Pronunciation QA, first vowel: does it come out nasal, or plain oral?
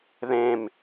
nasal